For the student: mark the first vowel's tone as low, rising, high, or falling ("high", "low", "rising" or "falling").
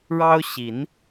high